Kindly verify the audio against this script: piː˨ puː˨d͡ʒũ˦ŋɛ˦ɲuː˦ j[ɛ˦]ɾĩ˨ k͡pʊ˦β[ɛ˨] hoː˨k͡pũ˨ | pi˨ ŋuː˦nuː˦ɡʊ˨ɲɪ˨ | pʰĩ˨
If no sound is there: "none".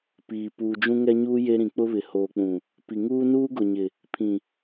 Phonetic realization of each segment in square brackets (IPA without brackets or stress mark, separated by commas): e˦, ɪ˨